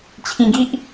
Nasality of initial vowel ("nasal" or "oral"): nasal